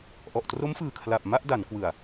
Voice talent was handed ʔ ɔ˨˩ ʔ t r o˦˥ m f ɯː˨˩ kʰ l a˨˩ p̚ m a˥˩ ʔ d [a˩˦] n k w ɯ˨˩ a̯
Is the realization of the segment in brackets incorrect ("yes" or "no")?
no